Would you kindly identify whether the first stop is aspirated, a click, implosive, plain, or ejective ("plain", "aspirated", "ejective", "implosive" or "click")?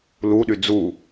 implosive